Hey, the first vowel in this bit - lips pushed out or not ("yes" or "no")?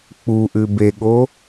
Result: yes